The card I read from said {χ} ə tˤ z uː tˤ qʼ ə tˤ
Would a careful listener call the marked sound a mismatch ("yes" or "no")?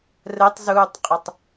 yes